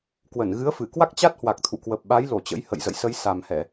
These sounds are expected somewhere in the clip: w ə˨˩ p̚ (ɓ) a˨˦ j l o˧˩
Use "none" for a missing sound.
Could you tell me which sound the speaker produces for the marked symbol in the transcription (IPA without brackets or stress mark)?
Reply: ɓ